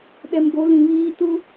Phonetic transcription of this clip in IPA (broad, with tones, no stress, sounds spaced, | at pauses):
ɗ ɛ˨ m ɡ o˨˦ l ĩ˨ β iː˦ t u˦